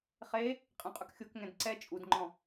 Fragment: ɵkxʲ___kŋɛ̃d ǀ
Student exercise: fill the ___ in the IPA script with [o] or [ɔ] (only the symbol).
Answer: o